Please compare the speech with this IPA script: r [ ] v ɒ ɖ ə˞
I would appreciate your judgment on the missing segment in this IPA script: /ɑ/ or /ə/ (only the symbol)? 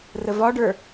ə